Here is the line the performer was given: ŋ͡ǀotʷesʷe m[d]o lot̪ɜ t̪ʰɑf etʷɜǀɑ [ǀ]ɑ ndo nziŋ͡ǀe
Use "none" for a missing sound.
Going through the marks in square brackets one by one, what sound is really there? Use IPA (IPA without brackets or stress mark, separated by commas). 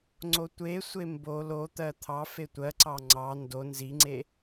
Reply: b, ŋ͡ǀ